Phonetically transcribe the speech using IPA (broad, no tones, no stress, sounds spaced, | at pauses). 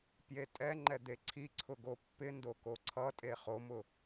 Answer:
p j e tʼ ɛ ŋ͡ǃ ɛ d̪ e ǀʰ i ǀʰ ʊ ɡ o pː ɪ n d o k o ǀʰ ʌ tʼ e χ o m ʊ